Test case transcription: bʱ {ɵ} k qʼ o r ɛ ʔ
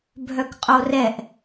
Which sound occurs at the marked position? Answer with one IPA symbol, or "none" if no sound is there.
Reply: œ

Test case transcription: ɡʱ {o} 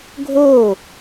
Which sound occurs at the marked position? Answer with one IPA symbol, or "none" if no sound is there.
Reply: o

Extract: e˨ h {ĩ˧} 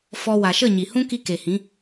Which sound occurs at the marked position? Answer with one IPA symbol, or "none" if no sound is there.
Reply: ĩ˨˦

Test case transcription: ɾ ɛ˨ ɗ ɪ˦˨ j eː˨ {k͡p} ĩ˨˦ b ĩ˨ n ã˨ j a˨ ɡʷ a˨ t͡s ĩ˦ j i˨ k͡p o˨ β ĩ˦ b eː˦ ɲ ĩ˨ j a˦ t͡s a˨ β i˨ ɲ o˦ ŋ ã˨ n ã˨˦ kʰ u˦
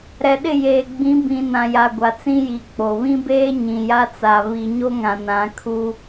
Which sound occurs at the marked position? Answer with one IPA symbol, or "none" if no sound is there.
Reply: ɡ͡b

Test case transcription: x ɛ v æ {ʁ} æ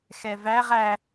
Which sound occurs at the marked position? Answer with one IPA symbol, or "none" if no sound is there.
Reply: ʁ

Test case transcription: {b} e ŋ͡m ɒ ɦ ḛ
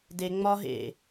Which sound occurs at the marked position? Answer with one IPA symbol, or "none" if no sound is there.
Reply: d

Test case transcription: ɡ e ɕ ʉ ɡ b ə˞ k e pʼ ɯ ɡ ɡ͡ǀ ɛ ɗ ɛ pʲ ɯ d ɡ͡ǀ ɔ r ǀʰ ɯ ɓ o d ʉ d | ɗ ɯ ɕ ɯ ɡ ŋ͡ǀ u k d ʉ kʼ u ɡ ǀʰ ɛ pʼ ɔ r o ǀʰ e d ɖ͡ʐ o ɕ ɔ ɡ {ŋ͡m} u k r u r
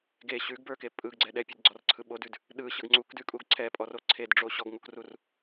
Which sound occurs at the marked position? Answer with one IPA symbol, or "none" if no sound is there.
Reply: ŋ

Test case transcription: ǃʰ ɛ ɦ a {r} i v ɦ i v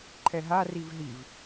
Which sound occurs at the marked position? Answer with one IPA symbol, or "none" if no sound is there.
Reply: r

